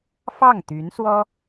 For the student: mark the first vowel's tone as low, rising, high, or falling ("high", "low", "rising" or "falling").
falling